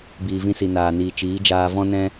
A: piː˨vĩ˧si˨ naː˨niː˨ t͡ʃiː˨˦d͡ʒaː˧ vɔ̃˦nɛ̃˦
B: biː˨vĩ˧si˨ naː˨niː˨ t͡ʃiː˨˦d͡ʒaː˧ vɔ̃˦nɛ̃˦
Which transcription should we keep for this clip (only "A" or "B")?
B